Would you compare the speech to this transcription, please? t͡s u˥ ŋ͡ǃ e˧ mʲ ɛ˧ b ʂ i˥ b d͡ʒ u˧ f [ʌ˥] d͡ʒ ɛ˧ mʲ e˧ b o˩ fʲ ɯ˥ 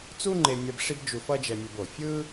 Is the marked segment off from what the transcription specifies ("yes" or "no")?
no